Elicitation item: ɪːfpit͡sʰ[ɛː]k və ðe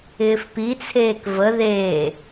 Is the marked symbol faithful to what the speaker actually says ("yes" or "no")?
no